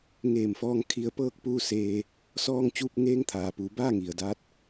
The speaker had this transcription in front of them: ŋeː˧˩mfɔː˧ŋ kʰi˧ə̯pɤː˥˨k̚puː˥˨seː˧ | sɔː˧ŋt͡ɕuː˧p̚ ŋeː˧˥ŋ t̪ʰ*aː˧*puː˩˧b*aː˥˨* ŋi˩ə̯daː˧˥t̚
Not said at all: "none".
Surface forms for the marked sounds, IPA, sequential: aː˩, aː˥˨

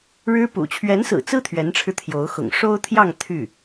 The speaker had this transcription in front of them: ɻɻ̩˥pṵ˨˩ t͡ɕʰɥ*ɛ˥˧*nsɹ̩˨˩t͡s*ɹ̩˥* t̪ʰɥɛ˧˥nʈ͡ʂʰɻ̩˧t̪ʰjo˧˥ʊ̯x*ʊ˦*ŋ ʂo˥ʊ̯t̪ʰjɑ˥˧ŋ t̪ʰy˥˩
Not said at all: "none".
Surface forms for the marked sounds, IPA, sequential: ɛ˧˥, ɹ̩˥, ʊ̰˨˩

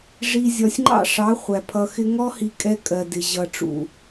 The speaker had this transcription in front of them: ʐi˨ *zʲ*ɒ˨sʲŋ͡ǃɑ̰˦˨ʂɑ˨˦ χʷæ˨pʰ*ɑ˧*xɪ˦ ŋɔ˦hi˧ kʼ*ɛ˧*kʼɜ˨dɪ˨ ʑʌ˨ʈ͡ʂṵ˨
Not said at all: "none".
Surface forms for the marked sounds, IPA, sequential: zʲ, ʌ˧, ɛ˧

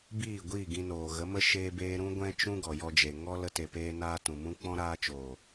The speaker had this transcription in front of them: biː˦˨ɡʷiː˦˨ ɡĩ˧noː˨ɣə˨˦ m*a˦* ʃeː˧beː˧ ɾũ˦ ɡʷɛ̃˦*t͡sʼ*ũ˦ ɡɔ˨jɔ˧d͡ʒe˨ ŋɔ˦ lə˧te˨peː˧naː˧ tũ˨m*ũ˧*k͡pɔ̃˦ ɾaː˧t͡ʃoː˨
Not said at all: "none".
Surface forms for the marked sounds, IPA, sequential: ə˦, t͡ʃ, ũ˦

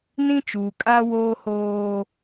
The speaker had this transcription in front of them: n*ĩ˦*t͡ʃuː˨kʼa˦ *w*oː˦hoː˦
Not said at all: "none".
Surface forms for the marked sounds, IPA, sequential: ĩ˦, w

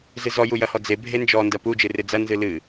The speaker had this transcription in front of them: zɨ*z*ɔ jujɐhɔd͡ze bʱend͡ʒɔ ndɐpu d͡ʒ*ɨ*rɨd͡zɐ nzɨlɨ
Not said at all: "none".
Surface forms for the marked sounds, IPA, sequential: z, ɨ

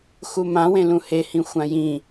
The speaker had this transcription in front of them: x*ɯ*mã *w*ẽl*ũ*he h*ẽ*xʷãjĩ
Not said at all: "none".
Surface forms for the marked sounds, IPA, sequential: u, w, ũ, ĩ

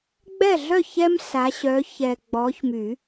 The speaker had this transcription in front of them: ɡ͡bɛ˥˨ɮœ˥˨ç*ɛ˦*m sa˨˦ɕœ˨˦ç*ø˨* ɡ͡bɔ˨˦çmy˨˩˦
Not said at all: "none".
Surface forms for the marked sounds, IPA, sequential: ɛ˦, ɛ˨

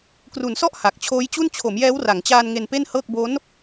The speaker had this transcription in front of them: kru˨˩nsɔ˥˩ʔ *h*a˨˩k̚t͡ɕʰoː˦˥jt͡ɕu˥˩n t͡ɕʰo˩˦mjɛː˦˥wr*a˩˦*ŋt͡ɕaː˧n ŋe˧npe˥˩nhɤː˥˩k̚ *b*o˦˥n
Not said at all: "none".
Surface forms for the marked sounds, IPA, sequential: h, a˩˦, b

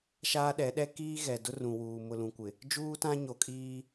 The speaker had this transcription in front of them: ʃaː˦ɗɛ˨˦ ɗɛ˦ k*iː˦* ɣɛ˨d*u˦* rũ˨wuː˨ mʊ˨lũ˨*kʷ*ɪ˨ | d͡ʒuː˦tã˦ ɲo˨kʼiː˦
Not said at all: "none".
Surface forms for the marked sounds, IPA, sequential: iː˦, ʊ˦, kʷ

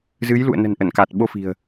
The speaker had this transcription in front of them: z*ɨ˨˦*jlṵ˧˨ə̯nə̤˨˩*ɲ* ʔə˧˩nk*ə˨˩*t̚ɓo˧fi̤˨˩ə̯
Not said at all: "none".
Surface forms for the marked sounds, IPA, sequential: ɨ˨˦, n, a˨˩

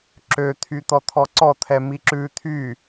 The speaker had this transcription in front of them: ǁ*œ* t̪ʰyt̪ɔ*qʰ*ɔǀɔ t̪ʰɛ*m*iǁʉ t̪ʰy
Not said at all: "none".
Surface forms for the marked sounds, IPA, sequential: ø, t̪ʰ, m

